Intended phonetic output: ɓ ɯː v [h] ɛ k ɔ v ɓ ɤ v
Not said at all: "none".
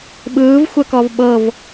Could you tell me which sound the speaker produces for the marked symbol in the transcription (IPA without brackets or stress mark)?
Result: xʷ